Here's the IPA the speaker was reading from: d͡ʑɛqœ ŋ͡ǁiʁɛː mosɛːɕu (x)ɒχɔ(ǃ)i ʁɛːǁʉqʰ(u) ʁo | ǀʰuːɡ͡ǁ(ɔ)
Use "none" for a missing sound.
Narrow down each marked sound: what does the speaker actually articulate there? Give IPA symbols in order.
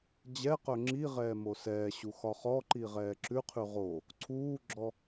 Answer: x, ǃ, ʉ, ɔ

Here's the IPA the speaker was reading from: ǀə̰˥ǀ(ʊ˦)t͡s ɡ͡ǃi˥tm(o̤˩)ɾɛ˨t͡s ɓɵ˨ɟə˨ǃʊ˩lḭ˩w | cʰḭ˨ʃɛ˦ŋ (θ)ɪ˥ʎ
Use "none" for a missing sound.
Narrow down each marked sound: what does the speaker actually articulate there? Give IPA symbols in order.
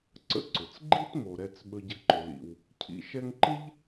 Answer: ʊ˩, o˩, ǃ

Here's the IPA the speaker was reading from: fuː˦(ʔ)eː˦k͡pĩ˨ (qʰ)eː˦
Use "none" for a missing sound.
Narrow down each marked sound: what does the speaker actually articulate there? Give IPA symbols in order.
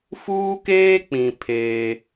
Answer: k, pʰ

